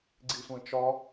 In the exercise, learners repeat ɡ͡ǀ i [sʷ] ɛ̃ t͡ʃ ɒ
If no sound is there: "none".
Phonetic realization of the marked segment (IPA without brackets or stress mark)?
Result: sʷ